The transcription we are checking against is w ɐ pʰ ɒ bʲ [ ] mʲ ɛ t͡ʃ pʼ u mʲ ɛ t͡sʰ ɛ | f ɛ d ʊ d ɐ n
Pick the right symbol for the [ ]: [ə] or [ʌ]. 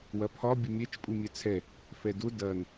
ə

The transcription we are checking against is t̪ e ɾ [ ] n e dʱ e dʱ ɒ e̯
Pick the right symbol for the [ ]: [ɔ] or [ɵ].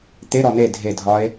ɔ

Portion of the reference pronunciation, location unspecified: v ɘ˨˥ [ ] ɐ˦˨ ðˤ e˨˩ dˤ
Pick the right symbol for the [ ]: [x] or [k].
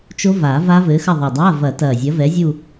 x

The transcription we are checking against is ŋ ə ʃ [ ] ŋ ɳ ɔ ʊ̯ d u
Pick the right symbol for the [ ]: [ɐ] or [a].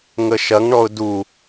ɐ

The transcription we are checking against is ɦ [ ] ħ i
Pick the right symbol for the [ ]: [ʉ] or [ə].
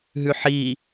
ʉ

